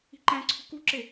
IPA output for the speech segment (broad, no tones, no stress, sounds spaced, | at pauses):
i̤ ǃ æ̃ ǀʰ ṳ k u ǁ e